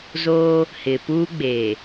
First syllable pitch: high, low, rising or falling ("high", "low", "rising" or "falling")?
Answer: high